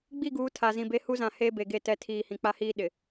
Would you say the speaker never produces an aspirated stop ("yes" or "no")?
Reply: no